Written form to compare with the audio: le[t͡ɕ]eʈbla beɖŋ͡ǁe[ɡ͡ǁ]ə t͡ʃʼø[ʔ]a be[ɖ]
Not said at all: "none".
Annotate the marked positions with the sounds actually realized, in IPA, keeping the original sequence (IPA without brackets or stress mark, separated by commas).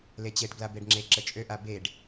t͡ɕ, ǁ, ʔ, ɖ